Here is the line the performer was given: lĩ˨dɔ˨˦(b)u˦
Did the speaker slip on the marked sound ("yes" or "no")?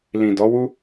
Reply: yes